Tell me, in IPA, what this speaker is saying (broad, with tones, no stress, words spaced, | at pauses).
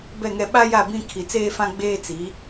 bɛ˦˨ŋɛ˦ ɓa˦ja˦˨ bĩ˦ kʰi˨t͡seː˦fã˦ ɡ͡beː˦t͡si˨˦